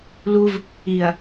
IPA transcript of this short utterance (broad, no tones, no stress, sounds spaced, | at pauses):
l u v | i ɐ̯